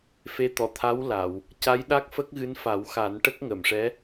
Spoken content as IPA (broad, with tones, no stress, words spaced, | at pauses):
fe˧˥ t̪ɔ˨˩˨t̪ʰa˧˥wla˨˩˨w | ca˧˥jɗa˦˥k̚fə˦˥k̚ɣɨ˧˥n fa˨˩˦wxa˨˩˦n ʈə˦˥k̚ŋə˨˩˨mʂɛ˧˥